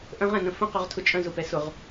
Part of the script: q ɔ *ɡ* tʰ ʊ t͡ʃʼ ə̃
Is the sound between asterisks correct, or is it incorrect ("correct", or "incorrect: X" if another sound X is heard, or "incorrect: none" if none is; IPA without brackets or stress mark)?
incorrect: ʁ